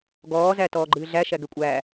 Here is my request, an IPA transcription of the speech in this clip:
ɡ ɔː z æ t ɔː ɡ͡ǃ ɨː ɮ æ ʃ æ ɡ ɛ kʷʼ æː

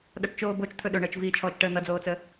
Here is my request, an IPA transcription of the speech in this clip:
ɗ ʌ ʈ t͡ʃ oː b o t͡ʃ t̪ʰ ɵ ɗ ɵ ɳ əː t͡ʃ v iː t͡ʃʰ ɔː t͡ʃ ʈ əː n̪ ʌ d͡z oː t͡s ə

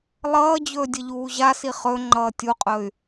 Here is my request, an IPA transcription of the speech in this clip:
lˠ ʌː d͡ʑ ɵː dʲ ə ʎ uː ʑ a s i χ ɵ ŋ͡ǃ ʌː tʲ u qʼ ɵ y̯

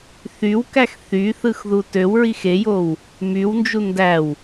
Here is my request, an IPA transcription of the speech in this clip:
θ y w k æ x θ y θ ɯ x ð u t ø w ɹ i x e j o w | m y w n d͡ʒ u n d æ w

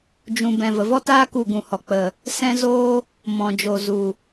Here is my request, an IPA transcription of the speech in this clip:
d͡ʒ ũ˧ b ɛ̃˨ v ə˨ v ɔ˦ t aː˦ k u˦˨ ɡ ũ˨ h ɔ˨ k͡p ə˨ | s ɛ̃˦ z oː˦ | m ɔ̃˨ d͡ʒ o˨ z u˨

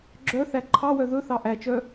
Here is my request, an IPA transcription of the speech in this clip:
ɡ͡ǁ œ θ æ ǃʰ ɑ w œ ð ɵ θ ɑ ʔ æ t͡ʃ œ

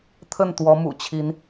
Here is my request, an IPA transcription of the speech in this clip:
t̪ʰ ə˥˨ n t̪ w ɔ˨˦ m ṵ˨˩ t͡ɕʰ i˨˦ n

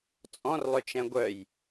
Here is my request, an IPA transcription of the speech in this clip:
t͡sʼ ɔ̃ r lˠ ʏ t͡ʃ ɛ̃ ɡʷ œ j

